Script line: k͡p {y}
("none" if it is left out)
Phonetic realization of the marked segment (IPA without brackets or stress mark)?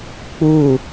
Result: u